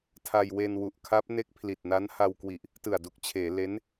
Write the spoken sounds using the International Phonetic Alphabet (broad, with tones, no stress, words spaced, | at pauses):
tʰa˧jwe˧nwu˨˩ʔkʰa˦˥p̚ ne˦˥k̚pʰli˨˩t̚na˦˥n ha˧wkwi˨˩ʔ | tɯ˨˩a̯du˨˩k̚t͡ɕʰeː˩˦ le˦˥n